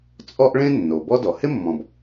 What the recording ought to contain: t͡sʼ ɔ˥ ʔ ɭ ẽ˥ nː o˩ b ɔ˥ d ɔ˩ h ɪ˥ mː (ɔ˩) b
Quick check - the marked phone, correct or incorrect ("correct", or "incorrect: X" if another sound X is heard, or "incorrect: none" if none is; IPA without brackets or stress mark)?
incorrect: ɔ̃˩